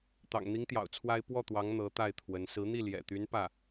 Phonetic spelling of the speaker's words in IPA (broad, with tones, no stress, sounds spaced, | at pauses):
t̪ ɑ̰˨˩ ŋ n̪ i˧˥ ŋ t̪ j ɑ̰˨˩ ʊ̯ t͡sʰ w a˥ ɪ̯ p w ɔ˥˩ t̪ w ɑ˧˥ ŋ n̪ ɤ˧˥ t̪ a˥˩ ɪ̯ t̪ʰ w ə˧˥ n s ɹ̩˧˥ n̪ i˥˩ l j ɛ̰˨˩ t̪ y˧˥ n p ä˥˩